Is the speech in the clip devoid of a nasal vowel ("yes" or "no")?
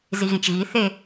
no